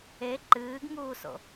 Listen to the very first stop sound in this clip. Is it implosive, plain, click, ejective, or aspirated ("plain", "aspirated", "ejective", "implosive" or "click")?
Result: click